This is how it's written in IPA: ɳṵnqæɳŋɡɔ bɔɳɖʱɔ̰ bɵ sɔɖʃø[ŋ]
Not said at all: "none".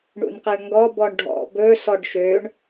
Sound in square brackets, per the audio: ɳ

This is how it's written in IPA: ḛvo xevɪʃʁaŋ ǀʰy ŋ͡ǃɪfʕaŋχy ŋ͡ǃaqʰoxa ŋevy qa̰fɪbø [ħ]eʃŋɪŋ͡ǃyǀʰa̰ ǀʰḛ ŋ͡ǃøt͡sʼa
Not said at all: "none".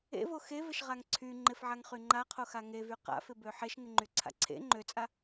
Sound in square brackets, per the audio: ħ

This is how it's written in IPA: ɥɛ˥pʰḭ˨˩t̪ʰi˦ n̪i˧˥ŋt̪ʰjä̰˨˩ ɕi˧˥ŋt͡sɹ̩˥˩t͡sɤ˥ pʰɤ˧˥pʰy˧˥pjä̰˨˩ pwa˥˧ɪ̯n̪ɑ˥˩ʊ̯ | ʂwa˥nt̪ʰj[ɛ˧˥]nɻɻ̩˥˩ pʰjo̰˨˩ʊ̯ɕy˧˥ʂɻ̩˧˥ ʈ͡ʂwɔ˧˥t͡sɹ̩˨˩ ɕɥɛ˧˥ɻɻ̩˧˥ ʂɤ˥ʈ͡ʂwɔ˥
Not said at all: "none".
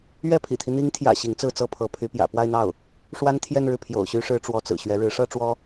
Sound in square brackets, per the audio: ɛ˥˧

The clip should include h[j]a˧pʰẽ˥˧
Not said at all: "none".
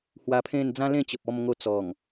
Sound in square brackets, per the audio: w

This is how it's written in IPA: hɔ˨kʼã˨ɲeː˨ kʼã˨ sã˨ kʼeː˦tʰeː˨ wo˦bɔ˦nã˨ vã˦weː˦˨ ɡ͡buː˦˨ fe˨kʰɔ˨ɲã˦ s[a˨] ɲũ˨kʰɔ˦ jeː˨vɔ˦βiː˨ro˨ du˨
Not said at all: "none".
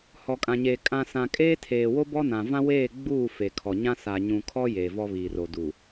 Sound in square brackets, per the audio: a˨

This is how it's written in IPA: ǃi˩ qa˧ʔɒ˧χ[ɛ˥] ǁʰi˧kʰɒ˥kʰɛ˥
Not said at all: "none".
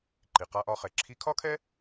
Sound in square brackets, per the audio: ɛ˩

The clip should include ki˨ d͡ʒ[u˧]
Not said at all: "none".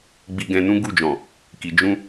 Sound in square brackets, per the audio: ũ˧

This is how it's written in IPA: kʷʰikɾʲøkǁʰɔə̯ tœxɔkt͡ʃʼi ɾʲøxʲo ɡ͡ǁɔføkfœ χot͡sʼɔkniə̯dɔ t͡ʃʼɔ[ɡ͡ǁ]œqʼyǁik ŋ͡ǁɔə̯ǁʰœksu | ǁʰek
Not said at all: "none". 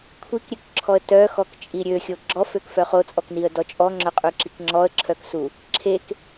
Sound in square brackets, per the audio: ŋ͡ǁ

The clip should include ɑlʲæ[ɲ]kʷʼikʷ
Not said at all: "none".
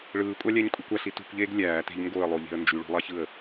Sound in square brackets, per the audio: ɲ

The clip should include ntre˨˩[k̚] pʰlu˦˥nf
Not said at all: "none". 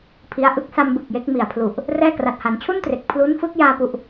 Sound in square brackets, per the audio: k̚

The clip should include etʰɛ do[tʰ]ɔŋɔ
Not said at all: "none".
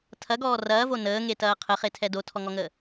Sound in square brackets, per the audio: tʰ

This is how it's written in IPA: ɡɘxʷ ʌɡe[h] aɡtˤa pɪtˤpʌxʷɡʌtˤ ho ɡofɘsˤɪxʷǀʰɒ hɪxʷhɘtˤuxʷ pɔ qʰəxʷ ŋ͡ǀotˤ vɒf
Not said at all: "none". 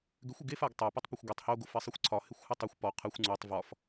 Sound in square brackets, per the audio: f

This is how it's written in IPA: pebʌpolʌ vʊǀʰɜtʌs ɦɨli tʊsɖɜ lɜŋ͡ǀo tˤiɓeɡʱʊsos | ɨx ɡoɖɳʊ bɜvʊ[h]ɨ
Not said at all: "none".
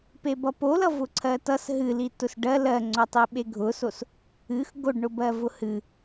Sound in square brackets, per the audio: h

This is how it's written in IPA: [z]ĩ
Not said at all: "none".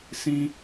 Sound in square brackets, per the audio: s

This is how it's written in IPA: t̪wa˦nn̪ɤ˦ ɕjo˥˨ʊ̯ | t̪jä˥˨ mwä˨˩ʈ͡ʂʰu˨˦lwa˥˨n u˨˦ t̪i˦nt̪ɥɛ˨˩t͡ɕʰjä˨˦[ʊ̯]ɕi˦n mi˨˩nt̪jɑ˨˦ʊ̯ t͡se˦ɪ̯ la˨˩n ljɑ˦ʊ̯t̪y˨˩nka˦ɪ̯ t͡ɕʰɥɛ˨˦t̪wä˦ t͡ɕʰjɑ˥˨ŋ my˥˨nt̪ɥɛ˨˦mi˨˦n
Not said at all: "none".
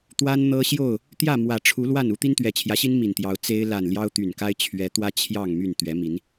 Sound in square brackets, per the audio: none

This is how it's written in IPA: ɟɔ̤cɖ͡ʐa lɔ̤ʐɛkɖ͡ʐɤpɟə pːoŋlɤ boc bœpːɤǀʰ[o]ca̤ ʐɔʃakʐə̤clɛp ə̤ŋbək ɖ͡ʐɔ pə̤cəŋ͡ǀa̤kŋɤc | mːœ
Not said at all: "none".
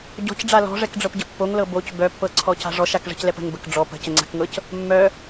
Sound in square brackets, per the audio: ɔ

